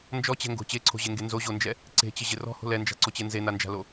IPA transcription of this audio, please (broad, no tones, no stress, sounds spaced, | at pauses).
n d͡ʒ ɔ t͡ɕ ɛ̤ ŋ ɡ o̤ t͡ɕ e ǀʰ o̤ ʑ e ŋ ɡ e n z o ʑ o n d͡ʒ ɛ | ǀ e̤ t͡ɕ ɪ ʑ ɪ r ɔ̤ h o̤ l ɛ n d͡ʒ a̤ ǀ o t͡ɕ e n z e n a n d͡ʒ a̤ l o